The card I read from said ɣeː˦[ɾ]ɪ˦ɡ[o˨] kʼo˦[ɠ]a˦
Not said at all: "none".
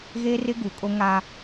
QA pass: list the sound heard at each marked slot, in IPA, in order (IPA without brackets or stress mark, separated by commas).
r, u˨, ŋ